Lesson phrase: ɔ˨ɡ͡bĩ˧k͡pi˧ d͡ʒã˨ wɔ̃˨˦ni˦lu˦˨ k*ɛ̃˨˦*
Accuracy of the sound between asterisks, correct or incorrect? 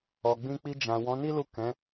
correct